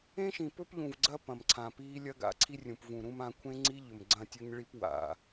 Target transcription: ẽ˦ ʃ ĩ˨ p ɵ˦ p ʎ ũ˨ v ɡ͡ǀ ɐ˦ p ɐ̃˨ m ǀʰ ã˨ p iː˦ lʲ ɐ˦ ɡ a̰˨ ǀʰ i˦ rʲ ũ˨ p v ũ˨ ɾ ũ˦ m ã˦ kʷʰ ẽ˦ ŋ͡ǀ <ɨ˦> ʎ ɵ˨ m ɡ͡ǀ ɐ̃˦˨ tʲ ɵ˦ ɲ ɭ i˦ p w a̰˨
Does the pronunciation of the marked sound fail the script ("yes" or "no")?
yes